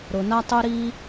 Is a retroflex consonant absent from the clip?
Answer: yes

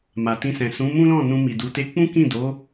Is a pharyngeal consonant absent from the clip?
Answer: yes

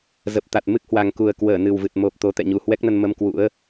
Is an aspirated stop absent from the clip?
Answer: yes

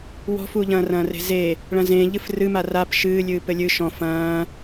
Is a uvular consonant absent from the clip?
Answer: yes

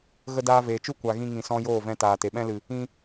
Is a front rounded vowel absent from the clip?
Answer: yes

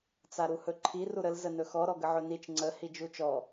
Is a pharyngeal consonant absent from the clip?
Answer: no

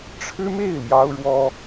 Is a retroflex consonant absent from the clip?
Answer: no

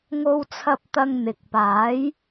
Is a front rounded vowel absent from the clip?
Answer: yes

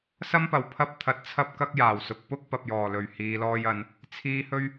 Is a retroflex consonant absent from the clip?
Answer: yes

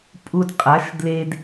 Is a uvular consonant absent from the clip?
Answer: no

